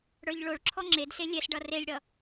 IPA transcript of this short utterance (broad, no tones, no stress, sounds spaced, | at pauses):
ɽ ə˞ ʎ ɭ o ɭ ǁʰ ɔ ŋ͡ǁ e d s e lʲ ɛ s ɖ ʌ r e lʲ ɽ ʌ